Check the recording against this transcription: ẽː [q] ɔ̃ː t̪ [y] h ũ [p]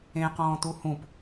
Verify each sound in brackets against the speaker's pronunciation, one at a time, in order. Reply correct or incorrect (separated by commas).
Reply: correct, incorrect, correct